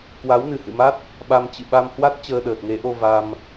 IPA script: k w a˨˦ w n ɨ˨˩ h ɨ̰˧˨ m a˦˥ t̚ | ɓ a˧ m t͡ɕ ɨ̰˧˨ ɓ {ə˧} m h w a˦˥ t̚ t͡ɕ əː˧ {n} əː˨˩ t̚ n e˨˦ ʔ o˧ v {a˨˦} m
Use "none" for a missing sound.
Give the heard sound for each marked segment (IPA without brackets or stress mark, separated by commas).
a˧, ɗ, a˧